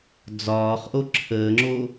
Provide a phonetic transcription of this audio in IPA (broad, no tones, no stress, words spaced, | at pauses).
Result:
d͡zɒːχʔo ǁʰəːŋ͡ǁo